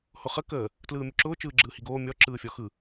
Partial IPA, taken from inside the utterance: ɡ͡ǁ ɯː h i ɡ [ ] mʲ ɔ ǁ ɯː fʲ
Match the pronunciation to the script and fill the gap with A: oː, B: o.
A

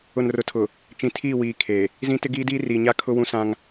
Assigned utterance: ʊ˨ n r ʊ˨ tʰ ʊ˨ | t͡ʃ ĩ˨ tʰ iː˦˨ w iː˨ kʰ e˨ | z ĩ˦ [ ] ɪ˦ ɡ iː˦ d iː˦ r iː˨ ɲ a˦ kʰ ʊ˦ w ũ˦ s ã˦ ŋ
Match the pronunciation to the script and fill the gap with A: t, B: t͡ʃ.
A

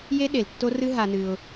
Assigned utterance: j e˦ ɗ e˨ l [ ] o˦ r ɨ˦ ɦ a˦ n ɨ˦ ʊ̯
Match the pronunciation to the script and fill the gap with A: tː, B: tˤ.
A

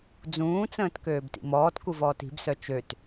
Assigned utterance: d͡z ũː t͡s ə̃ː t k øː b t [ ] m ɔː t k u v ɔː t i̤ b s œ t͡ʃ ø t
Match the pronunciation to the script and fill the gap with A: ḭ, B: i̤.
A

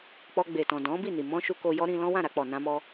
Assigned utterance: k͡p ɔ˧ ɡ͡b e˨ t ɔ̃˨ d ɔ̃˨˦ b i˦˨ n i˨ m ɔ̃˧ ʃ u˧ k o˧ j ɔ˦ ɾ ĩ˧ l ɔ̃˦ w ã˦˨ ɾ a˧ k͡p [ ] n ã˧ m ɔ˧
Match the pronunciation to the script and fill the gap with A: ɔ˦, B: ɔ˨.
B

